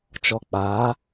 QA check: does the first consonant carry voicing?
no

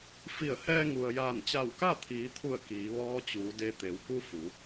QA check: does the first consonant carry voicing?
no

